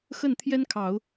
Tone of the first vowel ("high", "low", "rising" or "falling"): falling